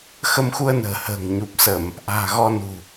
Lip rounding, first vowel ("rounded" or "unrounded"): unrounded